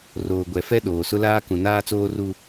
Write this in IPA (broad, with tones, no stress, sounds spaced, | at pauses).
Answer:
r oː˨ ɡʷ ɛ˨ f ɛ˦ ɗ oː˨ s ʊ˦ l aː˦ k ũ˨ n aː˦ t͡s oː˦ r u˦